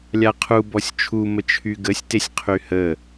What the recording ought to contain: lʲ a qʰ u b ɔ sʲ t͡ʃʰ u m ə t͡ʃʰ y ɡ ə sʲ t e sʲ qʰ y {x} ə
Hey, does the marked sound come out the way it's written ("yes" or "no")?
no